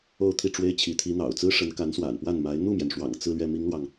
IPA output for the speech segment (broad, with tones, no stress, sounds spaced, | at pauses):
o˥˧ ʊ̯ t̪ʰ i˥˩ ʈ͡ʂ w e˥ ɪ̯ t͡ɕʰ i˧˥ t̪ʰ i˧˥ n̪ ɑ̰˨˩ ʊ̯ t͡s ɹ̩˥ ʂ ə˧˥ n k a˧˥ n s w a̰˨˩ n p w a˥˩ n m a˧˥ ɪ̯ n̪ u˥˩ m j ɛ˩ n ʂ w ɑ̰˨˩ ŋ t͡s ɹ̩˥˧ l ɥ ɛ˥˩ m i˥ ŋ l w ɑ˨ ŋ